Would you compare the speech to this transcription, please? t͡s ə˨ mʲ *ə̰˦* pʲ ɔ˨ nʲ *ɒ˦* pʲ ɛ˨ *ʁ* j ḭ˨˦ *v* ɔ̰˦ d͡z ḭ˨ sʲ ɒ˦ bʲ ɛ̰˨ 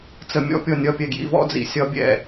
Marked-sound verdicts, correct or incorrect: incorrect: ɔ̰˦, correct, incorrect: ɡ, correct

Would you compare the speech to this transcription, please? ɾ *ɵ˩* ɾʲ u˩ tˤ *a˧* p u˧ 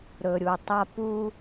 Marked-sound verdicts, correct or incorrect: correct, correct

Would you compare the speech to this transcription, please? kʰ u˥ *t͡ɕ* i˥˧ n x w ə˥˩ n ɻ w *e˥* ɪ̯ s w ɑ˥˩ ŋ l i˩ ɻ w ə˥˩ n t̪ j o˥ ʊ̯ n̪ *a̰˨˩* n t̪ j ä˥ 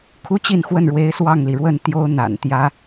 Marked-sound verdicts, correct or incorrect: correct, incorrect: e˧˥, correct

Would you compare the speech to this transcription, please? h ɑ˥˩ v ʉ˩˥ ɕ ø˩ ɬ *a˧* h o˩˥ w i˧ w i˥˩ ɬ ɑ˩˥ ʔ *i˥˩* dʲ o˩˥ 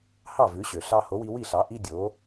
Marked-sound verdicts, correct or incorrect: incorrect: ɑ˧, incorrect: i˥

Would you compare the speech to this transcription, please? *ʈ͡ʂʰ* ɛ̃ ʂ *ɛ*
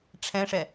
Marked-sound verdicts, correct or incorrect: correct, correct

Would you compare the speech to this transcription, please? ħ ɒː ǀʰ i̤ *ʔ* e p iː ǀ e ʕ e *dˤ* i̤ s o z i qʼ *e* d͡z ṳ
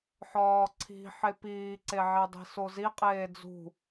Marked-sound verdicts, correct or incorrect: incorrect: ħ, correct, incorrect: eː

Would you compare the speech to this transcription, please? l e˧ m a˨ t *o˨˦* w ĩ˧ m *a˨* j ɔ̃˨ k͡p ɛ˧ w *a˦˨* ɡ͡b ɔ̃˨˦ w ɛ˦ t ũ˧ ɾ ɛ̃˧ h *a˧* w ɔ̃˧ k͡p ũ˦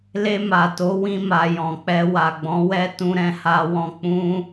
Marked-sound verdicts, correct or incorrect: correct, correct, incorrect: a˨, correct

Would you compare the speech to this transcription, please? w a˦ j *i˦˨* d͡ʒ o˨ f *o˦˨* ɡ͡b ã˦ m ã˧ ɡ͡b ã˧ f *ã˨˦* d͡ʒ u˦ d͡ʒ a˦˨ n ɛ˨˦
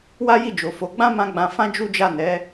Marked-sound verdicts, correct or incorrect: correct, incorrect: o˨˦, incorrect: ã˦

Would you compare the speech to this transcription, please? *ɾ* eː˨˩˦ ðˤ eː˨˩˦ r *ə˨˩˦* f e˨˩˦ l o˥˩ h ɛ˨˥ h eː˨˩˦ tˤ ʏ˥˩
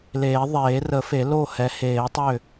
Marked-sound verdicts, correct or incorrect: incorrect: l, correct

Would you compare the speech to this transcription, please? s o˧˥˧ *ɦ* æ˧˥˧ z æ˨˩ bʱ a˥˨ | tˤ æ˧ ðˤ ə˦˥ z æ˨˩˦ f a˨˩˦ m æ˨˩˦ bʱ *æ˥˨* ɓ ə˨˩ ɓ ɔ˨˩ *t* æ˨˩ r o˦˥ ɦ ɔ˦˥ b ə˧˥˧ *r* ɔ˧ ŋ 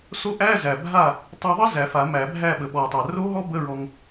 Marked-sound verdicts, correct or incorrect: incorrect: ʔ, correct, incorrect: tˤ, incorrect: ɹ

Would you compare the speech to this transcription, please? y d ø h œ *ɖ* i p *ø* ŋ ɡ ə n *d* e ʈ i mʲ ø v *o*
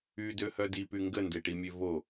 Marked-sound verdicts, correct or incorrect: incorrect: d, incorrect: y, correct, correct

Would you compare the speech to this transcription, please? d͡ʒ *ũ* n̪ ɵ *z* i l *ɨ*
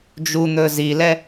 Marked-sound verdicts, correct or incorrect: incorrect: u, correct, incorrect: ɛ

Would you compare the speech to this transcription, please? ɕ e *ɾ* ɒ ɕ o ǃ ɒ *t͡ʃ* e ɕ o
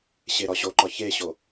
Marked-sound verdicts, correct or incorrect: correct, incorrect: ç

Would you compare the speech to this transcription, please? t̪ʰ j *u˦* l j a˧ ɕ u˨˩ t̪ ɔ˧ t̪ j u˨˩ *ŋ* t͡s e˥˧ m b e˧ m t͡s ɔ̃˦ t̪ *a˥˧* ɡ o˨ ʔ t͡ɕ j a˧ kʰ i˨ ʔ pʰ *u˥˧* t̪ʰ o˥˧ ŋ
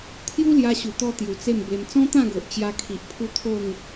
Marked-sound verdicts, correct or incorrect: correct, incorrect: none, incorrect: ã˥˧, correct

